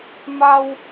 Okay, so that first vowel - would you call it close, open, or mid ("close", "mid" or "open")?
open